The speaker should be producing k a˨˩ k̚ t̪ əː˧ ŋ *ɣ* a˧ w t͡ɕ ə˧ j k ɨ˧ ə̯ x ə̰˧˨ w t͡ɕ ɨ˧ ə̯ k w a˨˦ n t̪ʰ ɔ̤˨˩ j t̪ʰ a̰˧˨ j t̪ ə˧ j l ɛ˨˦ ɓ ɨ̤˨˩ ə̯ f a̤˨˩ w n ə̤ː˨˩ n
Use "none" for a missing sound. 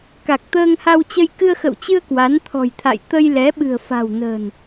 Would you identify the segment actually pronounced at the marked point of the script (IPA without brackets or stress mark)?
h